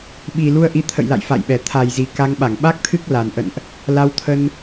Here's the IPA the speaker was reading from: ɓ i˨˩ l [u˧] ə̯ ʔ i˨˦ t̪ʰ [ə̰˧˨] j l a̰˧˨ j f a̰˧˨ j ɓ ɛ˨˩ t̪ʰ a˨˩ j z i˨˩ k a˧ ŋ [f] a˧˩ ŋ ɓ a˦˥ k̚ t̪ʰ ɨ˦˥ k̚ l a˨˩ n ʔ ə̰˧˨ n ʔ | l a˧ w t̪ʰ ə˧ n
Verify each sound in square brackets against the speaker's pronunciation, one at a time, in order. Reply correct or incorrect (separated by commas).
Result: correct, correct, incorrect